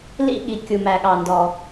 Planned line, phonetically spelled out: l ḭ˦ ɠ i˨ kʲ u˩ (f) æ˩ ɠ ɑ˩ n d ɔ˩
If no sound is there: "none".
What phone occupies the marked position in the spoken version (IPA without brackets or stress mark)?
m